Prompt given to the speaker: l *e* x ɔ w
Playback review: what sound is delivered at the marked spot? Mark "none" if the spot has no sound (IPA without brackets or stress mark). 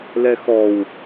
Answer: ɛ